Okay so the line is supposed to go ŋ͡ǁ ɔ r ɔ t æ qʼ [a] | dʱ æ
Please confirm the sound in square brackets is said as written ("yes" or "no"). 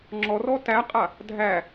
yes